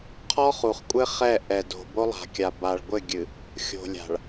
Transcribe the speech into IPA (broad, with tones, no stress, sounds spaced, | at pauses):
qʰ ɔ˦ χ u˨ χ kʷʼ ɘ˦ χ ɛ˦˨ ʔ ɛ˨ d o̤˨ b o˦ lˠ a̤˨ kʲ a˨ b a˨ ɭ ɡʷ ɘ˦˨ ɡʲ ɨ˨ | xʲ o̤˨ lʲ a̤˨ ɭ